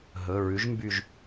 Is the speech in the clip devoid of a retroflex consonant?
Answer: yes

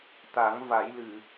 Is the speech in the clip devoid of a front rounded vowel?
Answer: yes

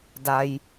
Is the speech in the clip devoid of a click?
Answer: yes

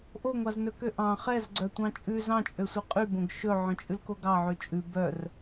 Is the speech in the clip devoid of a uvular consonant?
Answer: no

